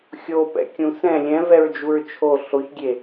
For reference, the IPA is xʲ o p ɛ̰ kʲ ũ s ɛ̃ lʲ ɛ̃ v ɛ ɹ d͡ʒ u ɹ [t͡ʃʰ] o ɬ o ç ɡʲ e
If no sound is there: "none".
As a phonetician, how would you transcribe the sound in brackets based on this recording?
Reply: t͡ʃʰ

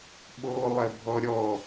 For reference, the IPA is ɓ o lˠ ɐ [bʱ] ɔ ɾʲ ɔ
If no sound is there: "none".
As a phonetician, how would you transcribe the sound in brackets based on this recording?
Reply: bʱ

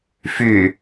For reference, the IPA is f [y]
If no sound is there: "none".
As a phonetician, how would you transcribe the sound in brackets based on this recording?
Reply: y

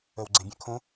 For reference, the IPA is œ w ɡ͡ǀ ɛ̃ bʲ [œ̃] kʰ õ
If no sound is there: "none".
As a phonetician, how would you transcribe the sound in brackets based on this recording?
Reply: œ̃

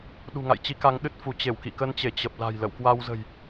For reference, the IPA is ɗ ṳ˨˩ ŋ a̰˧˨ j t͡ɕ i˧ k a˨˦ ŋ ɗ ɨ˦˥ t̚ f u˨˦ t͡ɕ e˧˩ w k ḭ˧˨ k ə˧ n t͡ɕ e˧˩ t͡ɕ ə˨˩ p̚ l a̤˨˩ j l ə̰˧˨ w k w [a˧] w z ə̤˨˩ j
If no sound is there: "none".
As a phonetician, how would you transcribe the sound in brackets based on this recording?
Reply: a˧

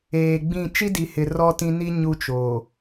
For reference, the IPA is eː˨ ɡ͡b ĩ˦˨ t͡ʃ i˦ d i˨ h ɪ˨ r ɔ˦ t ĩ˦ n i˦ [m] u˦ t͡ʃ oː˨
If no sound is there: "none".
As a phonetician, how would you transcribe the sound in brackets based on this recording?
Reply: ɲ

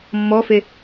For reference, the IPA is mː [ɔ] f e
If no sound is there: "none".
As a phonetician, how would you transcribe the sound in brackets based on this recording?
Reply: ɔ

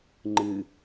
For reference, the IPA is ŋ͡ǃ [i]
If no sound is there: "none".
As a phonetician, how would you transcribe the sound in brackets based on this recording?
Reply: ɨ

